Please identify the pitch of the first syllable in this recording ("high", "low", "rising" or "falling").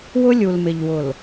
high